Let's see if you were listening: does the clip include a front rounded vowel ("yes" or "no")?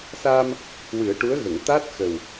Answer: no